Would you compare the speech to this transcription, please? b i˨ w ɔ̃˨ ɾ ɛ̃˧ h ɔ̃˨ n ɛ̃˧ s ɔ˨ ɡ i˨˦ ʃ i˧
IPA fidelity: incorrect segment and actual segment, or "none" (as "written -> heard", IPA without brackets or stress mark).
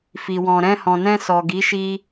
b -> f